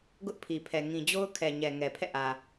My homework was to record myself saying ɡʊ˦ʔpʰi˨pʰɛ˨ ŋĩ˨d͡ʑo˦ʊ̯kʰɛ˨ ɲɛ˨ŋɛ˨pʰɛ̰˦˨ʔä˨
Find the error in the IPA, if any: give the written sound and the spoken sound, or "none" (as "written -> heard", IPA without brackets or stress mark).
none